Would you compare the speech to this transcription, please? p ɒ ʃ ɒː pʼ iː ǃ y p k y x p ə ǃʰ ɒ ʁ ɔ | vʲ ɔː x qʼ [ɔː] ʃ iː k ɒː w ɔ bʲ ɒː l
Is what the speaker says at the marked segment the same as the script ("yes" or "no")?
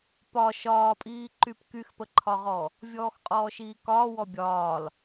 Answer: yes